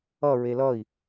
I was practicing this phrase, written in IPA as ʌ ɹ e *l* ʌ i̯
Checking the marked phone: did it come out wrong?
no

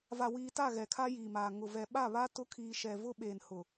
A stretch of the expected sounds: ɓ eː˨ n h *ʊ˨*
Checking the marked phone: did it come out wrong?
no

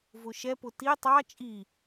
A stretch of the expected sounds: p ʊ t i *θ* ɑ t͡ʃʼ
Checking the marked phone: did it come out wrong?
yes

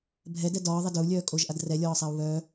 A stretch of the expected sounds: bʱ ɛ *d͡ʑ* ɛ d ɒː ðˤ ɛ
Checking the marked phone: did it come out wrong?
yes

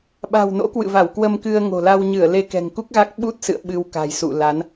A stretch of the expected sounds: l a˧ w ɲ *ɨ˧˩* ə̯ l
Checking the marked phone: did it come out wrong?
no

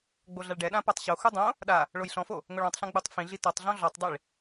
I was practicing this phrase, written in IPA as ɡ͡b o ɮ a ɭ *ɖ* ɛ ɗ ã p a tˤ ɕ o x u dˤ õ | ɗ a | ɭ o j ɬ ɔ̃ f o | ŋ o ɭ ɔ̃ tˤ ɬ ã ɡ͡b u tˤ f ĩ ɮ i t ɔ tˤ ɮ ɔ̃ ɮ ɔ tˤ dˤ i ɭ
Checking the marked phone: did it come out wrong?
no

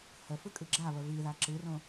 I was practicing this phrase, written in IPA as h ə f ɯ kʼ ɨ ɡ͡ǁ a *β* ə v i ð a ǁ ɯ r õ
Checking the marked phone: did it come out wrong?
no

